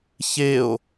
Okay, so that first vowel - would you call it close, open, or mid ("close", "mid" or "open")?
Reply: mid